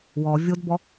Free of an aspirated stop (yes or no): yes